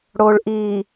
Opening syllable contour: low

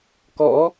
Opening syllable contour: rising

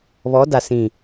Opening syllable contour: rising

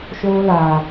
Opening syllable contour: high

